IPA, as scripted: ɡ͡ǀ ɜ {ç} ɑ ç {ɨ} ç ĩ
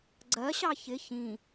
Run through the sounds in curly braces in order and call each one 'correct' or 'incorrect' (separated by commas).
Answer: incorrect, incorrect